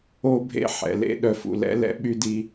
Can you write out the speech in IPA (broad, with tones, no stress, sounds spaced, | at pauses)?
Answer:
o˦ bʱ ḛ˦ ħ ɛ̰˨ l ḛ˦ ɗ œ˨ f ṵ˨ l ɛ̰˦ l ɛ̰˦ ɓ y˦ d i˦